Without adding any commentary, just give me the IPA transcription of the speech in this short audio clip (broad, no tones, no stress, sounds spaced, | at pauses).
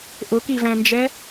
ʔ ʊ k i v æ̃ n d͡ʒ ɛ